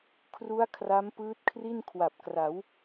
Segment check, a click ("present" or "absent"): absent